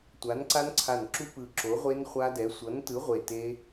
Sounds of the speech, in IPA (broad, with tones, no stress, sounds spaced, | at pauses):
tʷ a˨˥ n ǀ a˦˥ n ǀʰ a˧˩ n ǁ u˦˥ p ɯ˧˩ ǁ o˨˥ ʁʷ e˦˥ n χʷ a˦˥ d ɛ˨˥ sʷ ʌ˨˥ n t ɯ˨˥ ʁʷ e˧˩ t e˦˥